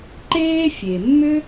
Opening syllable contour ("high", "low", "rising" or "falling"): high